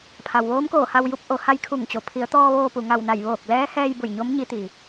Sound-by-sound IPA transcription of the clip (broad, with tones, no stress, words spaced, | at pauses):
pʰa˩wʋoː˧˥mkoː˧˩ ha˧wju˧˥p̚ ʔo˩˧ ha˧˥jkʰu˧˩ŋt͡ɕo˩˧ pʰi˩˧ə̯t̪ɔː˧ ʋoː˧pu˩ŋa˧˩wna˧˩j ʋoː˧˩k̚lɛː˧˥hɛː˧j bu˧˩jɲo˧˥m ɲi˧˥t̪i˩